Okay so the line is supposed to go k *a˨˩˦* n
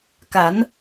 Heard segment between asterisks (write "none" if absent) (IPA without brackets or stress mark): a˨˩˦